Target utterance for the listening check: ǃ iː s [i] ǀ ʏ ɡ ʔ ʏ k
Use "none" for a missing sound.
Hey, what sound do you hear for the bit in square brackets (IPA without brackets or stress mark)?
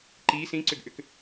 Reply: ĩ